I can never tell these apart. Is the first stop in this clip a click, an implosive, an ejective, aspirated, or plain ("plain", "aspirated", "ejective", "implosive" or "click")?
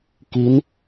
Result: plain